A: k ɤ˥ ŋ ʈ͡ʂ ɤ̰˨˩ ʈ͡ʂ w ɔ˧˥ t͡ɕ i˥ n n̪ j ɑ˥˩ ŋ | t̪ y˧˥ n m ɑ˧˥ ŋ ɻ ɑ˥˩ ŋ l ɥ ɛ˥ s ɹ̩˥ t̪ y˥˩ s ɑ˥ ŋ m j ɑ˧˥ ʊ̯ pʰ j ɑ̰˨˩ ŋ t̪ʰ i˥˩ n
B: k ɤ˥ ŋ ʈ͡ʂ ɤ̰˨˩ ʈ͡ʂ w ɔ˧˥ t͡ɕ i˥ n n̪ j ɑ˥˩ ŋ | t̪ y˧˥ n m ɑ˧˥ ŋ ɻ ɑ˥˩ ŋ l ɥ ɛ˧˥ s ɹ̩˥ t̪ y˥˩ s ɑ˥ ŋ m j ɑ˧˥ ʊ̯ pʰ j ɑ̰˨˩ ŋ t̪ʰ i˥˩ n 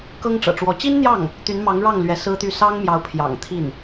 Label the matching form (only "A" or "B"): B